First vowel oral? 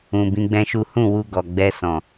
no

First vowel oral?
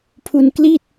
yes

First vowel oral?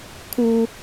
yes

